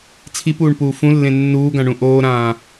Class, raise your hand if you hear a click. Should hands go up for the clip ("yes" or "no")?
no